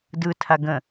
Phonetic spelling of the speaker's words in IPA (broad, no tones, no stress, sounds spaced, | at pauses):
d ɯ tʰ a ɡ ə̃